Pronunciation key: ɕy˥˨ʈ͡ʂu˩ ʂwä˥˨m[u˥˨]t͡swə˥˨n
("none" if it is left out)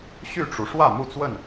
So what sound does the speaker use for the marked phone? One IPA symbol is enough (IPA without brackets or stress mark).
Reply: u˥˨